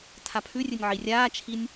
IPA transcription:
tʰ a pʰ ʉ rʲ ɨ nʲ ʕ i rʲ aː t͡ʃʰ i nʲ

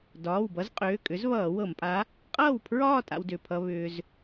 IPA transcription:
d ɒː˩˧˩ w b ʌ˨˥ z qʼ ʏː˩˧˩ kʼ ʏ˨˥ z β ʌː˧˩˧ w ɤ˧˩˧ m pʼ a˨˥ | qʼ ʌː˥˩ w pʰ ɹ ɒː˥˧ tʼ a̰˧ w d ʏ˩˧˩ pʰ ʌ˧ β ʏː˧ z

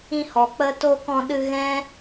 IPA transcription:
ĩ˧ h ɔ˨ k͡p ə˧ t o˧ k ɔ̃˧ ɗ ɨ˧ ɣ ɛ̃˦

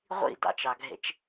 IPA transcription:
ʁʷ ḭ d ɑ̰ t͡ʃ ɑ ɡʱ ḛ t͡ʃ

